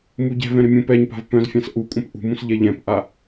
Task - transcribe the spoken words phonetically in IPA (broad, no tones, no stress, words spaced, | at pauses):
muɟɛ̤vɛ̃ ɾɪmʲũpɛɲpa̤v pœ̃z fʲãsʔukʷʼœ̃p ʔṳmũs ʎɛʎɛ̃pʔa